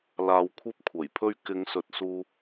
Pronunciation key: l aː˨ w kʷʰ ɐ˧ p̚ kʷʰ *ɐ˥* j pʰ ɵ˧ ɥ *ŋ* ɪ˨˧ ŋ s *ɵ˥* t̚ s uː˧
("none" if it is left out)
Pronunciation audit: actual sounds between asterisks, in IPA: ɐ˨˩, k, ɵ˨˥

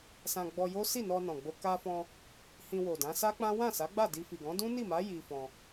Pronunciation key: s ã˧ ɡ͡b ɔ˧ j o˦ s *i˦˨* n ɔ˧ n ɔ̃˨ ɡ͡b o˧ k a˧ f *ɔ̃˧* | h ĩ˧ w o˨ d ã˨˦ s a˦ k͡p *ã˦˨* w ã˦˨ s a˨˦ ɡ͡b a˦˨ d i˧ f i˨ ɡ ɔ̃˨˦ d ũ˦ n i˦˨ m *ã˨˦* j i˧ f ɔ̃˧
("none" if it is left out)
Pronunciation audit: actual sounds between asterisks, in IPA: i˦˨, ɔ̃˧, ã˦, a˨˦

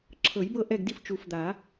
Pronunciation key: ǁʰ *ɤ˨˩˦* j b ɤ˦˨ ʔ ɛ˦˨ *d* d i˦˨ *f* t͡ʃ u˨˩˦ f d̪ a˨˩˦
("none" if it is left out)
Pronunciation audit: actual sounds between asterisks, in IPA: ɤ˨˩˦, ɡ, f

